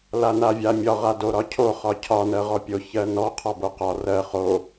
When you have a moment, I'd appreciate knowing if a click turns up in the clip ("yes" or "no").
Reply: no